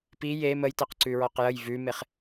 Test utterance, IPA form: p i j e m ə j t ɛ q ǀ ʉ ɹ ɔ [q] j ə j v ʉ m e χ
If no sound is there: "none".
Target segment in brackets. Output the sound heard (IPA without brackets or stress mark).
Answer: q